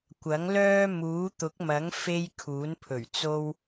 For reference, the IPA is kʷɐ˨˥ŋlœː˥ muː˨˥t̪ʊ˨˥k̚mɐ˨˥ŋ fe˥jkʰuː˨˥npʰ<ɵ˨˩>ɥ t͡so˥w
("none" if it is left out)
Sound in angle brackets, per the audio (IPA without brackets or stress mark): ɵ˨˩